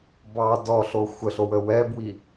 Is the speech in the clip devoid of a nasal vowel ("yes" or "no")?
yes